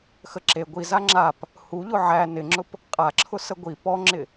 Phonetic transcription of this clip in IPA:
x ə ǁ e ɡʷ i z a ŋ͡ǁ a p | h u ʎ ʊ ʕ æ n ɪ ŋ͡ǁ ʊ p | qʼ a ǁʰ ʊ s ə ɡʷ i p ɔ ŋ͡ǁ ɪ

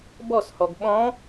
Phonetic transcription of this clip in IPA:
b ɔ s h ɔ ɡ ɓ ɔ̃

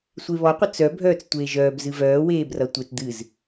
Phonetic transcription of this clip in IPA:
sʷ e β ɔ qʷ ə t͡s œ bʱ œː t͡s tʷ eː ʒ œː b z ɨ v œː w eː b r ʌ tʷ e t d̪ ɨ z

